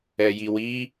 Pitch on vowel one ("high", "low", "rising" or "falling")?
low